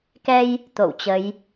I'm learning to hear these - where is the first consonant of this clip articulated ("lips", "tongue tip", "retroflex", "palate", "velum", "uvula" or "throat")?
velum